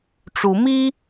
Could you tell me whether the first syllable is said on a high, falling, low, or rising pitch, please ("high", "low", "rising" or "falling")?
rising